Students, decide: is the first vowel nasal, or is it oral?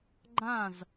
nasal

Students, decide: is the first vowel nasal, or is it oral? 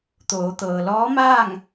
oral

